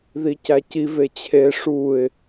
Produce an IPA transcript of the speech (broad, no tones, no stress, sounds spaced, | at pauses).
ð i c æ c i v e t͡ɕʰ e ʂ u ɪ̯